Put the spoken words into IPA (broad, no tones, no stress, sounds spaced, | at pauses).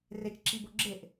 r e t͡ʃ ǁ i b o ɡ͡ǁ e ʔ